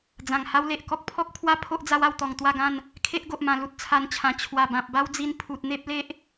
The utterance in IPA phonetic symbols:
d͡zã˨˩ŋha˦wle˨ʔ kɔ˦k̚pʰɔ˦k̚pʰwa˦ pʰo˦ʔd͡za˦wa˥˧wt̪ɔ˨˩ŋ t̪wa˥˧ɡã˥˧n | kʰe˦ʔɡo˨ʔmã˨˩ lu˦t̚t͡sʰa˧nt͡ɕʰã˨˩ t͡ɕʰwa˨˩bã˨p̚ba˦wd͡zi˧n pʰu˨t̚n̪e˦p̚le˦ʔ

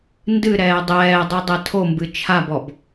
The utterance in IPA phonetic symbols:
ndɨ ɾɛːdˤɛːdˤu dˤɛtʰombɨ t͡ʃʰabɔb

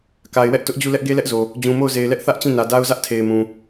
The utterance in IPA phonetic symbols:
ka˨ɪ̯wɛ˦ʔ tʊ˦ʔd͡ʑu˦˨ lɛ˦ʔɡe˦lɛ˦ʔzo˨ | d͡ʑũ˨mo˦˨ʊ̯ze˨ɪ̯lɛ˦ʔ θä˦ʔ t͡ɕĩ˦˨nä˨da˦ʊ̯ zä˦ʔtʰe˨ɪ̯mũ˨

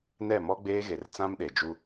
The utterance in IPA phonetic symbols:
nɛ˦˨mɔ˦ɡ͡beː˦ɣe˨r t͡sã˦mɗe˨d͡ʒu˦

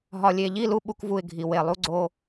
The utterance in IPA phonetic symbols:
ɦɒ˨lʲe˨ʎi˦˨lu˦ ɓu˦kvu˦˨ɪ̯ɡʱi˨ we˨lˠu˦ ɡ͡ǀo˦

